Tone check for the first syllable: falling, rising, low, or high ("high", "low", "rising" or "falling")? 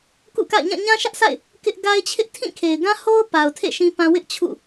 falling